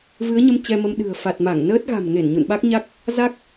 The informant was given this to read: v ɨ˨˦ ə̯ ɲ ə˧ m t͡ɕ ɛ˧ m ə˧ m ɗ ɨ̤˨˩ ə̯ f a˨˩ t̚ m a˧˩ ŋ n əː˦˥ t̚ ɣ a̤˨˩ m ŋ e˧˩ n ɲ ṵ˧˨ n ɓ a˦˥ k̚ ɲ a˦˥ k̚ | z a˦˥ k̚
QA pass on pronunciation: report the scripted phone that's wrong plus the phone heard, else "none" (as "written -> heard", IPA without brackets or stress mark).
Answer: none